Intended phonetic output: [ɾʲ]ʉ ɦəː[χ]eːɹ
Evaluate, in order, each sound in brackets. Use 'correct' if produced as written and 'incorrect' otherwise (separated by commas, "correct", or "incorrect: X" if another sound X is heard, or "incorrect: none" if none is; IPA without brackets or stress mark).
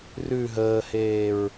incorrect: r, incorrect: h